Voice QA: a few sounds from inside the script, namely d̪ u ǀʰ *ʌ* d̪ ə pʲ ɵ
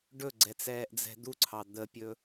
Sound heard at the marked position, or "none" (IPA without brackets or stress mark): ɑ